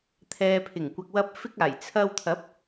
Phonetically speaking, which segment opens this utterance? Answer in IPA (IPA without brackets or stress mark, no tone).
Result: t̪ʰ